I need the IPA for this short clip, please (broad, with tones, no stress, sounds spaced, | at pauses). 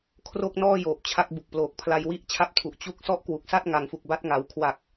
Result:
kʰ r o˥˩ k̚ n ɔː˥˩ j oː˨˩ p̚ t͡ɕʰ a˦˥ k̚ b u˨˩ k̚ p l oː˨˩ k̚ pʰ l a˧ j w i˥˩ ʔ t͡ɕʰ a˦˥ p̚ tʰ u˨˩ ʔ t͡ɕ u˦˥ k̚ s ɔ˥˩ ʔ k w u˨˩ k̚ s a˥˩ t̚ ŋ a˩˦ ŋ f u˨˩ k̚ b a˦˥ t̚ ŋ a˩˦ w kʰ w a˨˩ k̚